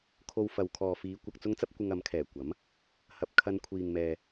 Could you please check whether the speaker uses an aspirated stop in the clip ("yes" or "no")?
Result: yes